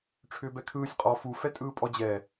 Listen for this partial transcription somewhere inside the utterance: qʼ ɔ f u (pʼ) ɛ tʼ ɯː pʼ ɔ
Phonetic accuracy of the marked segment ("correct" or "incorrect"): incorrect